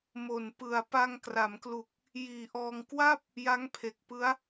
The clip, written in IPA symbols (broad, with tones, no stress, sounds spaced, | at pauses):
m o˨˩ n p ɯ˨˩ a̯ p a˧ ŋ k r a˩˦ m k l u˨˩ k̚ | j iː˨˩ ʔ ɔː˧ ŋ k w a˥˩ p̚ | j a˦˥ ŋ pʰ e˨˩ k̚ p ɯ˦˥ a̯